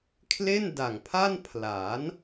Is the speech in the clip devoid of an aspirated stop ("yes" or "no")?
no